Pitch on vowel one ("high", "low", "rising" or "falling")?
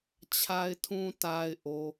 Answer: low